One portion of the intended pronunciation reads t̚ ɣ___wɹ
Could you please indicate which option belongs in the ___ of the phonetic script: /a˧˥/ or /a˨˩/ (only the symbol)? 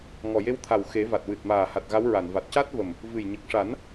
a˧˥